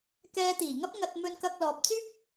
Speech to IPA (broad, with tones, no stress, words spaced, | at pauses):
kɛː˧t̪iː˨˩ŋɐ˥p̚ŋɐ˧t̚ mɵ˧nkɐ˧k̚lɔː˨p̚t͡syː˥p̚